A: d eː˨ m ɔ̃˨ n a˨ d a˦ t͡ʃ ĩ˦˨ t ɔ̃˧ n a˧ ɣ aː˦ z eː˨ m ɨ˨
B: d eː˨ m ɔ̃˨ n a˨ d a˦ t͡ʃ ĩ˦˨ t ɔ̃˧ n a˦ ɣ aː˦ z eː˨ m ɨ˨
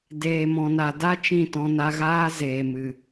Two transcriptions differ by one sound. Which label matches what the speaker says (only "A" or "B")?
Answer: A